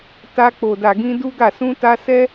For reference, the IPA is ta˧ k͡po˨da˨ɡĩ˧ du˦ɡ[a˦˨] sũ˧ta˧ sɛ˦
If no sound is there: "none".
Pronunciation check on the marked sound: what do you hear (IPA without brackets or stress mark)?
a˦˨